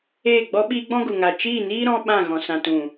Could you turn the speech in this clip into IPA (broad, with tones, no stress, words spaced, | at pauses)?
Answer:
eː˦˨ɡ͡bɔ˦ɓiː˦ɡ͡bɔ̃˦ ɡu˨ŋa˨ t͡ʃiː˦˨niː˦ ɾɔ̃˦ɓã˦˨ ɣɔ̃˨sã˨ tũ˨